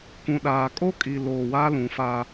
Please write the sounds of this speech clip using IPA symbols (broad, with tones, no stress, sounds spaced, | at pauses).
k ũ˨ ɗ aː˨ kʼ o˦ kʼ i˨ l oː˨ w a˦ l ũ˨ f a˦